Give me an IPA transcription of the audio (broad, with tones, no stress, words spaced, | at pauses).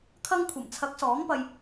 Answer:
kʰɐ˥ŋ kʷʰɐ˨˩mt͡sʰɐ˨˥k̚ sɔː˨˥ŋpɐ˧j